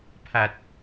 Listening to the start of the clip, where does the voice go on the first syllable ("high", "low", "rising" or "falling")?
low